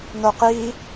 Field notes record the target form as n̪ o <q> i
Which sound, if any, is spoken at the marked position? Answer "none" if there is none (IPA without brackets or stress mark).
q